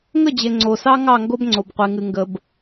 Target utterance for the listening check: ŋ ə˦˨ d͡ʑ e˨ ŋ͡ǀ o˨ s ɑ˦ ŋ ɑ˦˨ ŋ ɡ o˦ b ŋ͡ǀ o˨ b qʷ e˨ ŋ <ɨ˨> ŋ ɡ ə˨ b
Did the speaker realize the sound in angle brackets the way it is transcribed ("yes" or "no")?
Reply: yes